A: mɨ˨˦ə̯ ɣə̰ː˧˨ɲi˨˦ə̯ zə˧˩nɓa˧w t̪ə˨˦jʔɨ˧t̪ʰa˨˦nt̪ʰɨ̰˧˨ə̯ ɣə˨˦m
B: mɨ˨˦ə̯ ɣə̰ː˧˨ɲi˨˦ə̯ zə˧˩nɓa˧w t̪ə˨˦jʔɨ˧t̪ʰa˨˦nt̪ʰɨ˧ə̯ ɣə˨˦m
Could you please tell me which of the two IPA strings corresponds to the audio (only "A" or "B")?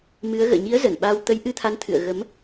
A